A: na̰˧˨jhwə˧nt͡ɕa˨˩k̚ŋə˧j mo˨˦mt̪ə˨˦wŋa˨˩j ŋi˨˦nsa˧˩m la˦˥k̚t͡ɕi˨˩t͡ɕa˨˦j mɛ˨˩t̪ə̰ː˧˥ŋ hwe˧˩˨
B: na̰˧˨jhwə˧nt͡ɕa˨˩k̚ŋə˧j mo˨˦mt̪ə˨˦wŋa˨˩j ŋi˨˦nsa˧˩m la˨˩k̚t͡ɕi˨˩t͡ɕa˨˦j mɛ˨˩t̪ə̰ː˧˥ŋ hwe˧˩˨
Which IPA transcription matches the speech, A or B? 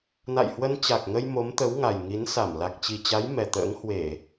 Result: B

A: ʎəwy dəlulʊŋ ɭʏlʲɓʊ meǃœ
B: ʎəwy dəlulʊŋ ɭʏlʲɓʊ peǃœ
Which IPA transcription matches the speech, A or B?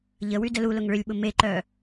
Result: A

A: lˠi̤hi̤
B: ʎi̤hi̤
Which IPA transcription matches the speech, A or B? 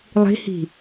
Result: A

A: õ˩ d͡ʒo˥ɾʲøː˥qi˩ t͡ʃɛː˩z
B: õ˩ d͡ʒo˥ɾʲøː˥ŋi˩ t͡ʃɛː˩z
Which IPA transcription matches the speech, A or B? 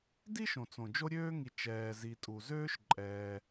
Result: B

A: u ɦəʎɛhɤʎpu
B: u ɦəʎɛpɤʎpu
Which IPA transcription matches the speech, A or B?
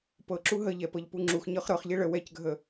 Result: B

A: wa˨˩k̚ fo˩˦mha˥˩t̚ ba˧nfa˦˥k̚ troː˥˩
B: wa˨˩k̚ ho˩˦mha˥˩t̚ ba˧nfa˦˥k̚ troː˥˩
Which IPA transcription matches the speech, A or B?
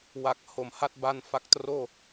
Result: B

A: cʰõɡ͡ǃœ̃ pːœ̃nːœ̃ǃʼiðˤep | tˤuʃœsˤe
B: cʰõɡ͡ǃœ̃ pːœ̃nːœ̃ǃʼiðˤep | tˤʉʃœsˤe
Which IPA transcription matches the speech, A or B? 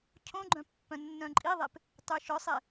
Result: B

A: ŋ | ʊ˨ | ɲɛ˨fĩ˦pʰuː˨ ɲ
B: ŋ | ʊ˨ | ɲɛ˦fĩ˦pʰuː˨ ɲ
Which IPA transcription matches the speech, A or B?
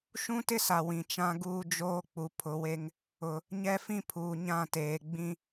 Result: B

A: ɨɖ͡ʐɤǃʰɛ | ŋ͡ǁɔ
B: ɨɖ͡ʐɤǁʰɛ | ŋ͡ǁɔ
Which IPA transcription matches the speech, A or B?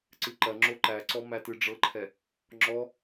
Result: A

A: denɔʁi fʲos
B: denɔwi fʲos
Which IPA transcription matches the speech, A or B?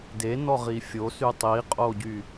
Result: A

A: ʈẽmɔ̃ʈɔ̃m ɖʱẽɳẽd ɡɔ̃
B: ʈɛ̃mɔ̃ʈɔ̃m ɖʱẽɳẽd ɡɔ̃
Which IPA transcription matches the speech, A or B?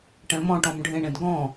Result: B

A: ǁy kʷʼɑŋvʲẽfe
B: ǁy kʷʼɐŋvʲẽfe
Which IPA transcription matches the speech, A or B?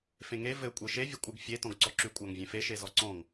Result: A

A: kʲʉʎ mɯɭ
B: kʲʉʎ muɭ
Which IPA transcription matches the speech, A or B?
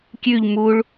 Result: B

